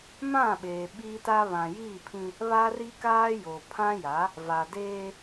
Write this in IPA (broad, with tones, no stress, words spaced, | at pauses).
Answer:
mã˦˨ɓeː˨ ɓiː˦ta˦ βã˨jiː˦˨pʰĩ˦ | βa˦ri˦kaː˦ jo˨pʰã˦ja˨˦ | va˨deː˦